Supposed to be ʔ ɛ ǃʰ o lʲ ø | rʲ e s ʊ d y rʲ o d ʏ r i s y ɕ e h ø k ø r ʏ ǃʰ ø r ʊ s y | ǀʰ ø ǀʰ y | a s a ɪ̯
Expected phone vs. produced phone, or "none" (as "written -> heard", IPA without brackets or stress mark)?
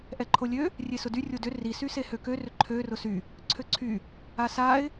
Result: ɕ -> s